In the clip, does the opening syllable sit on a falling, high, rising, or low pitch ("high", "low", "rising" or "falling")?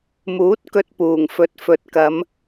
rising